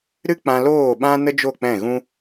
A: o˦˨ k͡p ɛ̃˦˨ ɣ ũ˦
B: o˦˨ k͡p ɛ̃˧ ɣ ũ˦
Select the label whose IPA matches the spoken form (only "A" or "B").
A